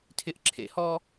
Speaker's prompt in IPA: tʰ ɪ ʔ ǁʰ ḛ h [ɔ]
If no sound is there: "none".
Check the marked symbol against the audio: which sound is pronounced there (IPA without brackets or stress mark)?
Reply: ɔ